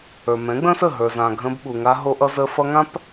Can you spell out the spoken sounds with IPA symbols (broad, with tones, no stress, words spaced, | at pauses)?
ə˞˨mɛ̃˨˦ɡ͡bə̃˦sə˦˨ ɦə˞˨zã˨ ɡʱə̃˧bɓu˨ ŋa˧ɦo˧ʔʌ˧ zə˧ fʌ˧ŋã˦p